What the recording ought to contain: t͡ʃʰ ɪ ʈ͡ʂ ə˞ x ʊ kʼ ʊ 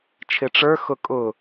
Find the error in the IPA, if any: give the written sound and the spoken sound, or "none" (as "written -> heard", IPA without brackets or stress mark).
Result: none